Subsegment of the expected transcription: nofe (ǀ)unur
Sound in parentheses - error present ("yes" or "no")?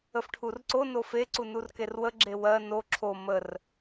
no